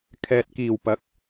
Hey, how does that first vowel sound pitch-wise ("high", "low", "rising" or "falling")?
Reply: low